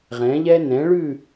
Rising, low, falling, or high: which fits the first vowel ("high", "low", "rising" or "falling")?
rising